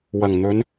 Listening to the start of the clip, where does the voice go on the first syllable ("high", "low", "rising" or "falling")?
low